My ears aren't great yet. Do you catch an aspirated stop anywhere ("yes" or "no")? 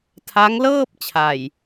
yes